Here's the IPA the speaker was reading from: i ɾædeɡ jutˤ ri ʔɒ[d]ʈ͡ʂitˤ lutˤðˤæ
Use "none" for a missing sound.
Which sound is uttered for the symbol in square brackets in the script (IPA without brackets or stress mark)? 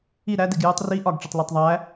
ɡ